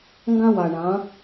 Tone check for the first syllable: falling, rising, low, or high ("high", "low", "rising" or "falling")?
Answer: high